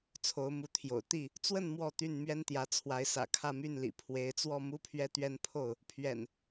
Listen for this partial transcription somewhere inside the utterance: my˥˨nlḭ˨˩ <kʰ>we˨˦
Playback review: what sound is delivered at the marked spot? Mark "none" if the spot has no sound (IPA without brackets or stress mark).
pʰ